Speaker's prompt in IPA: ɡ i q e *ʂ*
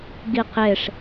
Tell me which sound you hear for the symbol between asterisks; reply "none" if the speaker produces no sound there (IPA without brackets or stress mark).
ʂ